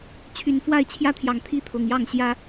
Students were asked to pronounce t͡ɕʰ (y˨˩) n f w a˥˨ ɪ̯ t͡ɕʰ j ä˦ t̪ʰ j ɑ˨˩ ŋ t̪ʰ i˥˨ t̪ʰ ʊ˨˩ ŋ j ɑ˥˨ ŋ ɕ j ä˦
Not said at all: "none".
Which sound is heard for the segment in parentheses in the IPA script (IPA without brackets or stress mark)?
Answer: y˨˦